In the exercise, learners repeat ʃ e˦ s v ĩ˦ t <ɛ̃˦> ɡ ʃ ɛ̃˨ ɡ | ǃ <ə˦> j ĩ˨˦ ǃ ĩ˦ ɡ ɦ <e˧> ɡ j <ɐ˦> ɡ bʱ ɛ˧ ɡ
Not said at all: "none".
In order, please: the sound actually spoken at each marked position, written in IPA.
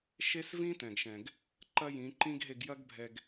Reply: ɛ̃˨, ɐ˦, e˧, ɐ˦

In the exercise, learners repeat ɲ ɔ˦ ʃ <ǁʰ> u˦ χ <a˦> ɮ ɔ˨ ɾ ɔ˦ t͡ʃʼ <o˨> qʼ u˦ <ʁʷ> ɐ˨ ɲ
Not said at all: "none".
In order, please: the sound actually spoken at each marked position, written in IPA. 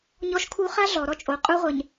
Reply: kʰ, a˦, o˨, ʁʷ

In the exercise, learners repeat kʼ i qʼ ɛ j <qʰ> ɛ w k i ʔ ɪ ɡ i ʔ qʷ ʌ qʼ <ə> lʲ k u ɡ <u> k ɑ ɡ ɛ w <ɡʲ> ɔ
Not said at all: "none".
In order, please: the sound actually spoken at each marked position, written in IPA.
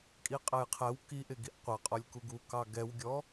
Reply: qʰ, ɔ, u, ɡʲ

